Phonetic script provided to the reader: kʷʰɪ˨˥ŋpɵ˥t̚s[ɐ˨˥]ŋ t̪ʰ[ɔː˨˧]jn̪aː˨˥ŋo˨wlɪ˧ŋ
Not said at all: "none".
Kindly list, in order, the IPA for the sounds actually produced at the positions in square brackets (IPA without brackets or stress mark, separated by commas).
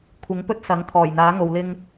ɐ˨˥, ɔː˨˩